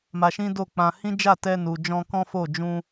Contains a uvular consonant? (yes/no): no